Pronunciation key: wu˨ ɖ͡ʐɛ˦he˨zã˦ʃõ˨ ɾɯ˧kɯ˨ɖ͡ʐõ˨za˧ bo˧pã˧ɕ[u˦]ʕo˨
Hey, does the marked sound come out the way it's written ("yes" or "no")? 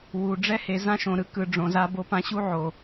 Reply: yes